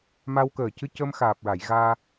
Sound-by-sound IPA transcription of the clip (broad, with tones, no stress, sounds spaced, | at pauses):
m a˧ w k əː˨˩ c ɨ˧ c ə˧ m x aː˨˩ p̚ ɹ a˨˩˨ j ɣ aː˧